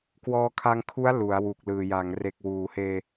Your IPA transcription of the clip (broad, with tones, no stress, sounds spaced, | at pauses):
k w ɔː˧ kʰ a˧ ŋ kʰ u˦˥ a̯ l u˩˦ a̯ w u˨˩ k̚ l ɯː˨˩ j a˩˦ ŋ r e˨˩ k̚ w uː˩˦ h eː˧